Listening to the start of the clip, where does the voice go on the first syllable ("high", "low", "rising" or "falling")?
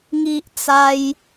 high